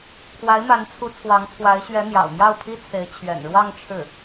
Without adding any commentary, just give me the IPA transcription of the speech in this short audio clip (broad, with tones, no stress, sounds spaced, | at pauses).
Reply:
kʰ w a˧˥ ɪ̯ m a˧˥ n t͡sʰ u˧˥ t͡sʰ w ɑ˧˥ ŋ t͡sʰ w a˧˥ ɪ̯ ɕ ɥ ɛ˧˥ n̪ j ɑ̰˨˩ ʊ̯ m j ɑ˥˩ ʊ̯ pʰ i˥ t͡sʰ e˧˥ ɪ̯ t͡ɕʰ ɥ ɛ̰˨˩ n ɻ w ɑ˥˧ ŋ ʈ͡ʂʰ ɻ̩˥˩